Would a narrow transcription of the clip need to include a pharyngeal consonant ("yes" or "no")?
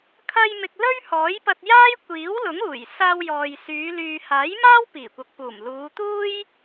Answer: no